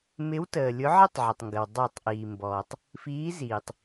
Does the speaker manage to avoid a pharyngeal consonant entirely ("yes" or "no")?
no